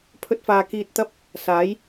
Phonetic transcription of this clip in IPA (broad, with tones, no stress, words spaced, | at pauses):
pʰɵ˧t̚faː˨ kiː˧t̚t̪ɐ˥p̚ | saː˨˥j